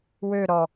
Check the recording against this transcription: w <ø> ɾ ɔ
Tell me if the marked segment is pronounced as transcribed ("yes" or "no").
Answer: yes